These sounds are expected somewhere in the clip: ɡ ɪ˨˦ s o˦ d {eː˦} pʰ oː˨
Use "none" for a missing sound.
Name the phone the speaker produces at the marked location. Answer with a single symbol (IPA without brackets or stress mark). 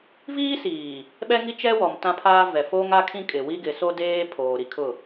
eː˦